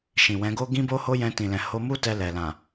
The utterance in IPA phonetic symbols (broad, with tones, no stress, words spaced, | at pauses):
ʃĩ˨wɛ̃˨˦ɡo˦ ɡĩ˦bo˦ho˦ jɛ̃˧tĩ˨lɛ̃˨ ho˧mu˦ tɛ˧lɛ˨ lã˨